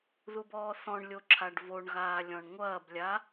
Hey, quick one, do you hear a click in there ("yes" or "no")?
yes